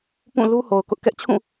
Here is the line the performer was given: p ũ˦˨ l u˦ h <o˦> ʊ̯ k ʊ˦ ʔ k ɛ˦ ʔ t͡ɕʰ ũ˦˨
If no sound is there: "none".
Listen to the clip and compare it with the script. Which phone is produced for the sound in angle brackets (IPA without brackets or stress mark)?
o˨